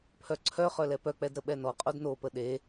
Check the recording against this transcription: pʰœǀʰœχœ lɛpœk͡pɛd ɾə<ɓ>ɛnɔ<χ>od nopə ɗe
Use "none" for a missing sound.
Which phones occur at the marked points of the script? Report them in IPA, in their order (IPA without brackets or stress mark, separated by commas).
ɓ, qʼ